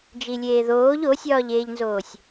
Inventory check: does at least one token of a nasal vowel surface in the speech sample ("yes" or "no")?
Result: no